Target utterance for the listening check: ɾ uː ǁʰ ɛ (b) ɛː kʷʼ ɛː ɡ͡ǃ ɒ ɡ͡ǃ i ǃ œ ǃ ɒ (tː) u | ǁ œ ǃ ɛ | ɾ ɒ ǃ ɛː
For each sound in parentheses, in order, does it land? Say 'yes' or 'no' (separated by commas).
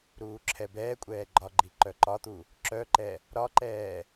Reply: yes, no